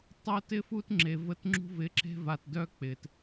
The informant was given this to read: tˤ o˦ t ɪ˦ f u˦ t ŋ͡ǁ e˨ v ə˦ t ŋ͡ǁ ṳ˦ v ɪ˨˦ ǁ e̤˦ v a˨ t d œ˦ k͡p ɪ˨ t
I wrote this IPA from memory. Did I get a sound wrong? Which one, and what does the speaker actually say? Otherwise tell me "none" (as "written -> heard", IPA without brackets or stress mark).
none